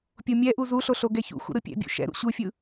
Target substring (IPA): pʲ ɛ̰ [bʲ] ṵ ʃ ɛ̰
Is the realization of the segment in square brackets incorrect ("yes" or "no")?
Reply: no